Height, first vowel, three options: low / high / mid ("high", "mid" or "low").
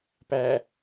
low